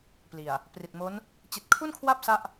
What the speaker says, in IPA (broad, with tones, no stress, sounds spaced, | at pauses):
p l i˨˩ a̯ | p r i˨˩ t̚ m o˦˥ n | t͡ɕ i˨˩ t̚ kʰ u˥˩ n kʰ w a˦˥ p̚ s a˥˩ ʔ